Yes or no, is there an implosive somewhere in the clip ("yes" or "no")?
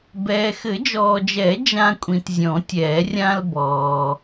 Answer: no